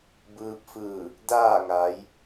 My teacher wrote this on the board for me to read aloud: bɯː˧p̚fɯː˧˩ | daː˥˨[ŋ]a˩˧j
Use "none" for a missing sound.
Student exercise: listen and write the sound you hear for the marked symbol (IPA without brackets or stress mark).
ŋ